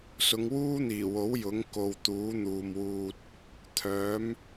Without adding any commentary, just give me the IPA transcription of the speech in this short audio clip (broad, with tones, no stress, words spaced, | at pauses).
sʊ˨˧ŋwuː˥n̪iː˨˩wo˨˥w jʊ˨˥ŋ ko˧w t̪uː˨˥n̪uː˨mwuː˧t̚ | t̪ʰœː˨˥m